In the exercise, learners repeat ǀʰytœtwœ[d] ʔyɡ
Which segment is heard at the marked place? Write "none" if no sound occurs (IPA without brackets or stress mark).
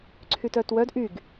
d